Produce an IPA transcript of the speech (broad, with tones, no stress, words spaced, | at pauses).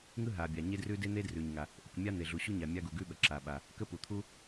ŋɯ˥ɦa˩bʲa˩ ɲe˥drʉ˥ de˥n̪e˥ drʉ˩ɲŋa˩ | ʔɯ˩kmʲa˥ n̪e˩ɮu˩ɕu˥ɲa˩ mʲa˥ɡu˩ɡʉ˥ ɓə˩ǁa˩ɓa˩ | kə˥pu˩t̪ʰu˥